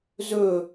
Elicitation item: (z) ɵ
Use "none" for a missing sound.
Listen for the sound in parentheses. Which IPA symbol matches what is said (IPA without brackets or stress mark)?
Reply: z